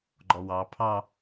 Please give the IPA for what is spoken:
ɡ͡ǃ ɔ w ɑ pʰ ɑ

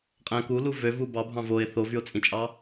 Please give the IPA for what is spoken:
qʼ æ̃ k u l u v ø v u b ɑ bʱ ɑ̃ v o ɪ̯ θ o v y ʊ̯ t͡sʼ ĩ t͡ʃʼ ɑ

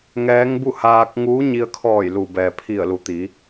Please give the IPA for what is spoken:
ŋ ɛː˧˥ ŋ b u˥˨ h aː˧ k̚ ŋ uː˧˥ ɲ i˧ ə̯ kʰ ɔː˧˩ j l u˩ b ɛː˩ pʰ i˧˩ ə̯ l u˩ t̪ i˩˧

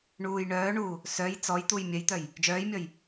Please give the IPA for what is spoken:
ɳ uː j ɳ œː ɳ uː | s œ j t͡s ɔ j t̪ u j mʲ œ j t̪ œ j | d͡ʒ œː j mʲ ɔ j

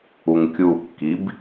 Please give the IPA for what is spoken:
u ŋ kʲ u kː i b

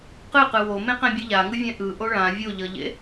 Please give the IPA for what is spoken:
q ɯ q ɯ w o m ẽ q ɛ̃ bʲ ɯ ʎ a ŋ ɯ vʲ ɛ̃ ʔ ɯ ʔ o ɭ ã vʲ o ʎ ʌ ʎ ḛ

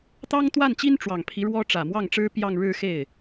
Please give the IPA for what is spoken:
t̪ ɑ˥ ŋ t̪ w a˥˩ n t͡ɕ i˥ n ʈ͡ʂ w ɑ˨˩ ŋ pʰ i˧˥ ɻ w ɔ˥ ʈ͡ʂ ä˨˩ m w ɑ˥˩ ŋ ʈ͡ʂ ɻ̩˥ p j ɑ˥˧ ŋ ɻ ɻ̩˥˧ x e˥˩ ɪ̯

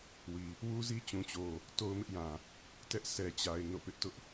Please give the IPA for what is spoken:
w i˨ | w u˦ z i˦ t͡ɕ ũ˨ t͡ɕ o˨ | t o˦ ʊ̯ m ɪ˦ ʔ j ã˨ | t ɛ˦ ʔ s ɛ˨ t͡ɕ a˨ ɪ̯ n o̰˦˨ p ɪ˦ ʔ t ʊ˦ ʔ

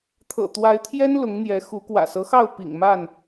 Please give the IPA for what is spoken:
t̪ʰ ɤ̰˨˩ t̪ w a˨˦ ɪ̯ t̪ʰ j ɛ˦ n l ʊ˨˦ ŋ n̪ j ɛ˨˦ x u˨˦ k w ä̰˨˩ s ɤ˦ x ɑ˥˨ ʊ̯ p ḭ˨˩ ŋ m a˥˨ n

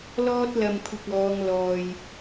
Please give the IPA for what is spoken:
l ɔː˥ t̚ l ɐ˧ m kʷʰ ɪ˧ k̚ ɔː˨˧ ŋ l ɔː˨ j

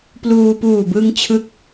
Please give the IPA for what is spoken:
p l uː˧ p uː˨˩ b ɯ˧ ŋ t͡ɕʰ ɯ˥˩ k̚

